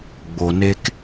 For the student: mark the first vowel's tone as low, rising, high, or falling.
low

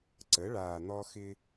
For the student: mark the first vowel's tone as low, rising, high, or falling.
rising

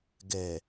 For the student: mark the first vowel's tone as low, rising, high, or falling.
low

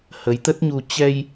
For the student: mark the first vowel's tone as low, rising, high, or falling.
rising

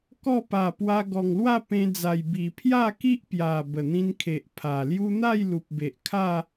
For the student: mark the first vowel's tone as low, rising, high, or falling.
falling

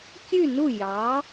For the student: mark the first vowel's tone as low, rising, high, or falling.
falling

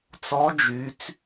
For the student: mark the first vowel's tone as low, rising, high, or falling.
rising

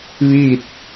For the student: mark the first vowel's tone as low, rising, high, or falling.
falling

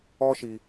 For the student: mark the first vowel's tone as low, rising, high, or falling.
high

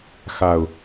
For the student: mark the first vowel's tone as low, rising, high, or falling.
low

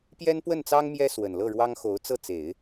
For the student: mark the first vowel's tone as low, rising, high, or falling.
high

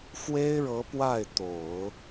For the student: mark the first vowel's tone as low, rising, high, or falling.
high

